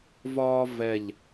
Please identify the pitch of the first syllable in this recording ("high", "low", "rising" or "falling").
high